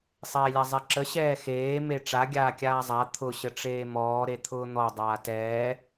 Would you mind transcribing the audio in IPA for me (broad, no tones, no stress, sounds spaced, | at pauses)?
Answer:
sˤ eː lʲ a zˤ ɛ ǁ ə ɕ ɛː x eː m e ʈ͡ʂ a ɡʲ aː kʲ aː zˤ a t̪ʰ ʊ ɕ ə ʈ͡ʂ eː m ɔː ɾ e t̪ʰ ʊː n̪ ɔ dˤ aː t ɛː